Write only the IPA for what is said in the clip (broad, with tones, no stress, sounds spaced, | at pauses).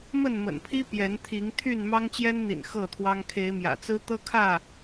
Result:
m ə˥˨ n m ə̰˨˩ n pʰ i˦ p j ɛ˨˦ n t̪ʰ i˨˦ ŋ t̪ʰ y˥˨ n m ɑ˦ ŋ t͡ɕ j ɛ˦ n n̪ ḭ˨˩ n x ɤ˥˨ t̪ʰ w ɑ˦ ŋ kʰ e˨˦ ɪ̯ m j ä̰˨˩ t͡s ɹ̩˦ t̪ ɤ˦ kʰ ä˥˨